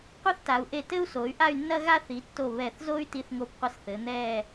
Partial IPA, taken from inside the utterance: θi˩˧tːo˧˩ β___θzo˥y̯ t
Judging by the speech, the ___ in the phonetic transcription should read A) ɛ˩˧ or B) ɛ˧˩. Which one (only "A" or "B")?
B